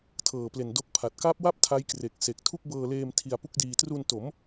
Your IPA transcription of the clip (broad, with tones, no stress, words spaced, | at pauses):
tʰɤː˨˩ple˨˩ndo˦˥k̚pʰa˨˩t̚ ka˦˥p̚wa˥˩p̚ tʰa˦˥jkre˨˩k̚ se˨˩k̚ tʰu˥˩k̚bɤː˧leː˧m tʰi˧a̯pu˦˥k̚diː˧ tru˧n to˩˦m